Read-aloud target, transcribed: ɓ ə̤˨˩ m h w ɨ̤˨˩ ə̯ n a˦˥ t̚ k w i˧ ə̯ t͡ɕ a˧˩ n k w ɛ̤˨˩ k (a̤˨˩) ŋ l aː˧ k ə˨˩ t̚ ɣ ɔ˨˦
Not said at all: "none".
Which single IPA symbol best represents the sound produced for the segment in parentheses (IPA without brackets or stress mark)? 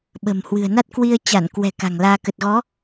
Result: a̤˨˩